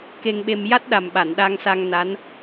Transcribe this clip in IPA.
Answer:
k e˧ ŋ ɓ e˧ m j a˦˥ t̚ ɗ a˨˩ m ɓ a˨˩˨ n ɗ a˧ ŋ s a˧ ŋ n a˧˥ n

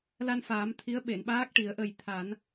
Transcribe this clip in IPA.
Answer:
l a˧ n f aː˨˩˦ m t̪ʰ i˧˥ ə̯ ɓ e˨˩˨ n ɓ aː˦˥ k̚ ʈ i˨˩˦ ə̯ ʔ ə˨˩ j t̪ʰ a˨˩˦ n

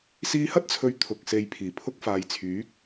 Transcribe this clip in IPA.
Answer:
s iː˧ h ɐ˥ t̚ t͡sʰ ɵ˨˧ ɥ t̪ʰ ʊ˨ k̚ s e˨˧ j pʰ iː˨˩ pʰ ʊ˧ k̚ f aː˨ j t͡sʰ yː˨˥ k̚

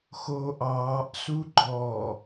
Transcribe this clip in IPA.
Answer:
x oː ʔ ɑː ʔ s u ɡ͡ǃ ɔ

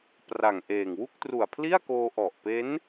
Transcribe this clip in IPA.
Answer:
p r a˨˩ ŋ ʔ eː˨˩ ŋ w u˥˩ k̚ t r u˨˩ a̯ pʰ l i˥˩ a̯ k oː˧ ʔ ɔ˨˩ ʔ p e˦˥ n

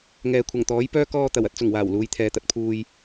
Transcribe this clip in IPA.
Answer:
ŋ ɛː˨ kʷʰ ɐ˨˩ ŋ t̪ ɔː˨˥ j p œː˥ k ɔː˧ t̪ ɐ˨˩ w ɐ˨ t̚ t͡s ʊ˨˩ ŋ w aː˨˩ w l uː˨˧ j t̪ʰ ɛː˨ t̪ ɐ˨ t̚ pʰ uː˨ j

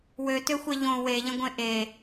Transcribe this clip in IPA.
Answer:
w ø t ø xʷ e ʎ õ w e ʎ ə̃ ɡʷ ẽ ʔ e

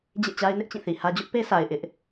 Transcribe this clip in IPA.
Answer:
d͡ʑ ḛ˦˨ t͡ɕ a˦ ɪ̯ n ɪ˦ ʔ t͡ɕ ĩ˦˨ θ i˨ h ä˦ d͡ʑ ʊ˦ ʔ p e˦ s a˨ ɪ̯ ʔ ɪ˦ ʔ

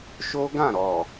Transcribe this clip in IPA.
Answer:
ʃ o˦ ɡ ã˦˨ ɾ ɔ˨

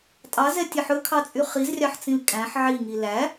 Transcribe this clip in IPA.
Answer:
tʼ ɑ z ɛ tʲ e ħ ɵ kʰ ɑ t͡sʼ y χ i z rʲ ɑ ħ t͡s ĩ l kʼ æ̃ ħ ʕ i ŋ i l æ

